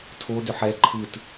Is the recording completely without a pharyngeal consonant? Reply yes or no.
no